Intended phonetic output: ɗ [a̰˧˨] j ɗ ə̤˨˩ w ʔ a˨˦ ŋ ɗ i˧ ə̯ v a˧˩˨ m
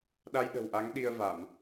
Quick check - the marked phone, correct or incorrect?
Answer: incorrect